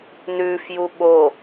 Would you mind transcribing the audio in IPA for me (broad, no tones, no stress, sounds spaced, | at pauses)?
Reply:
n ʉ f j u ɓ o